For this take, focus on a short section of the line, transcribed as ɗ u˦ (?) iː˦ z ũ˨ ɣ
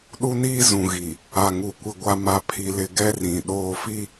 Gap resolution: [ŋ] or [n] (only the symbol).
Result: n